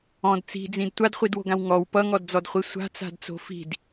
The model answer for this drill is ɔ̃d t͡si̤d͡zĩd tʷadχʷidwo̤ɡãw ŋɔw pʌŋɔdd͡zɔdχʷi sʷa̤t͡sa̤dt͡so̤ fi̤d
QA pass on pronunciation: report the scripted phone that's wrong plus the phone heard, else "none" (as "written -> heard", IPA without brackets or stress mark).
none